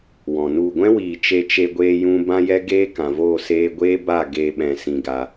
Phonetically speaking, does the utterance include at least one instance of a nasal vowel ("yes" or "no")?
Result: yes